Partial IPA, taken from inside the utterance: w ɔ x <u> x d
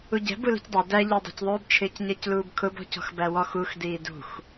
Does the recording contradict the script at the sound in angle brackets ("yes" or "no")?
no